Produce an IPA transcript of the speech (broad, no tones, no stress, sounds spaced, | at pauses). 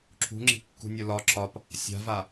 ǁʰ ṳ ŋ͡ǁ i̤ kː ṳ nʲ o l ɒ ǁʰ ɒ p | sʲ a̤ v a